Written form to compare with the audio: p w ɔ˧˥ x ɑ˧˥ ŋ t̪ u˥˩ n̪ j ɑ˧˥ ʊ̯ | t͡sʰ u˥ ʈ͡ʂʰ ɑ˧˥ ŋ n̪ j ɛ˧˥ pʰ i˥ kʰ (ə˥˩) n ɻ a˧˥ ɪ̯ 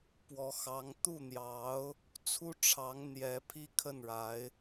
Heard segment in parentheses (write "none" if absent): ə˥˩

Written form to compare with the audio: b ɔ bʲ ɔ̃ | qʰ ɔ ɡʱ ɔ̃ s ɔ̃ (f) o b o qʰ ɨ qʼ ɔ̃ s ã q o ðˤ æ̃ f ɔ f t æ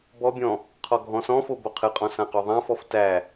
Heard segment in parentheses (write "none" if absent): f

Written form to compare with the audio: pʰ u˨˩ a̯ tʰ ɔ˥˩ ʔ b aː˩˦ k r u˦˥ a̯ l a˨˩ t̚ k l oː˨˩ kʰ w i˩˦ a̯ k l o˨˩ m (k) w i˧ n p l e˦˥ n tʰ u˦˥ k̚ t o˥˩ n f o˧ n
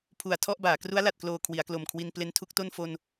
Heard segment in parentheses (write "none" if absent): kʰ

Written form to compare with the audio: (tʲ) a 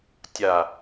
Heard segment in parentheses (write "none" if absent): tʲ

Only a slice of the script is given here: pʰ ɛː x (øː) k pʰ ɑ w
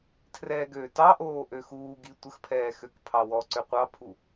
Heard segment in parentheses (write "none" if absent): ø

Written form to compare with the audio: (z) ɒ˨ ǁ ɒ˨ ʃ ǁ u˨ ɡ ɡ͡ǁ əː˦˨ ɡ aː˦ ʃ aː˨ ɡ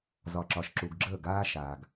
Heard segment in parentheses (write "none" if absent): z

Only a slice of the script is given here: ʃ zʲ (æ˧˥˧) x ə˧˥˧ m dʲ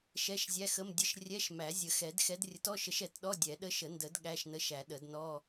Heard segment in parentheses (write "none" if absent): æ˧˥˧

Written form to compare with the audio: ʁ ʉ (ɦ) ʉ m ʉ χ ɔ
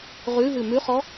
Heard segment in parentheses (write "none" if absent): ɦ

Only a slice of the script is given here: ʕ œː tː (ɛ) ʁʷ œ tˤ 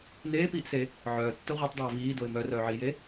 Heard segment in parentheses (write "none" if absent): œ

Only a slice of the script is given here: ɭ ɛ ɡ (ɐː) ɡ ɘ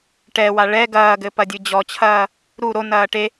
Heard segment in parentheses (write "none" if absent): ɐː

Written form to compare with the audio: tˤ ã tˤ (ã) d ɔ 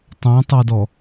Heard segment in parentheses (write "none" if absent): a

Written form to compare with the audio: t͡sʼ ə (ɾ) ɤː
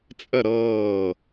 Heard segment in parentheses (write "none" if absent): ɾ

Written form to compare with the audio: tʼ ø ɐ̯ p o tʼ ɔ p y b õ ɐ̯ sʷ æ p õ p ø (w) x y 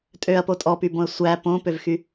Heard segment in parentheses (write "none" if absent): v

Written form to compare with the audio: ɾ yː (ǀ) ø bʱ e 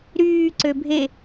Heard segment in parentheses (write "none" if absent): ǀ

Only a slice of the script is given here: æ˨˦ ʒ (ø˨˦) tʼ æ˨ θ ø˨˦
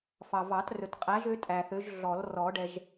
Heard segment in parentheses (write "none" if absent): ø˨˦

